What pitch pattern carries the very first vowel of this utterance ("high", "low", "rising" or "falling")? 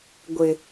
low